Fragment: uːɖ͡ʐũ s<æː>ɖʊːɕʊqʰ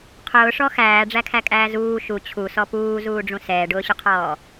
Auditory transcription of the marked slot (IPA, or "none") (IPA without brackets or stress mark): ɛː